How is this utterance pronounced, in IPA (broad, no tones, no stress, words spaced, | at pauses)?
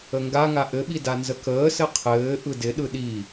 əŋɡaŋa ʔɘɓi danzəkəːsɘ qʰɘː ʔɯdɪɗɯ ɗi